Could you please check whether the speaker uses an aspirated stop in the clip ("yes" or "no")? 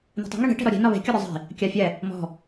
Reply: no